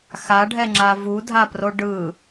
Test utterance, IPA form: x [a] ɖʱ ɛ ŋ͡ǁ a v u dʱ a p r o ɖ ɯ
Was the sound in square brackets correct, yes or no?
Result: yes